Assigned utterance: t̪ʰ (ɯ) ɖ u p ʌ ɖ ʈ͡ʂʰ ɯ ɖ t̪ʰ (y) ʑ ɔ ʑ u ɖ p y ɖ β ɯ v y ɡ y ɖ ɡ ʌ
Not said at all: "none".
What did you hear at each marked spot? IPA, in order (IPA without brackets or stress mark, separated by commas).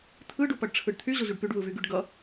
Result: ɯ, y